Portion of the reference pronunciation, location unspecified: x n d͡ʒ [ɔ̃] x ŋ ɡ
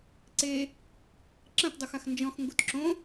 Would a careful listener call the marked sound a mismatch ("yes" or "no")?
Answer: no